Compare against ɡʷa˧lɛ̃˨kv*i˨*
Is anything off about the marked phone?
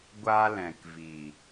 no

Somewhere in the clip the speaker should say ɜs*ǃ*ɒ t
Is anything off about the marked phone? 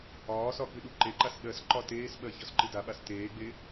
no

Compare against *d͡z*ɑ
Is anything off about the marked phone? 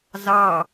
yes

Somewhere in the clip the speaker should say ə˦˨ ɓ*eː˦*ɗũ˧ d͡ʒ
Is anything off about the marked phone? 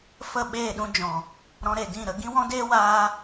yes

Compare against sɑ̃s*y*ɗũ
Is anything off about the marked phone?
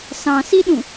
yes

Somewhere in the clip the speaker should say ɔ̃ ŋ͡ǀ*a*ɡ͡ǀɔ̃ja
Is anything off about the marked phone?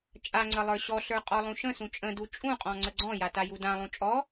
yes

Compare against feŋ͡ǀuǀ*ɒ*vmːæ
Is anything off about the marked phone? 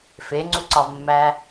no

